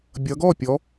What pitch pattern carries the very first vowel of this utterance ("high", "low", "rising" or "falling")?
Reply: rising